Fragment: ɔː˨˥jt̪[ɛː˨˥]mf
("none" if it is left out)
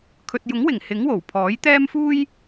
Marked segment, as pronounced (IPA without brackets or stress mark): ɛː˥